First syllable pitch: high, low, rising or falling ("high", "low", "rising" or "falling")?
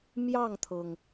falling